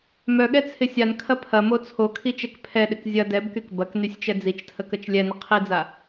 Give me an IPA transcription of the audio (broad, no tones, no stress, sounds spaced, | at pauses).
m œ ɠ ɛ t͡sʰ ɪ sʲ a n kʰ ɐ pʰ ɐ m o t͡sʰ o kʰ i t͡ʃ ɛ k pʰ ɛ ɗ ɪ k zʲ ɐ d ɛ b k y k b ɐ k n y sʲ t͡ʃ ɛ d͡z i t͡ʃ tʰ ə k ə t͡ʃ lʲ ɛ n ə qʰ i d͡z a